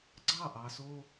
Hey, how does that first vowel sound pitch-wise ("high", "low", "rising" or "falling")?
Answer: falling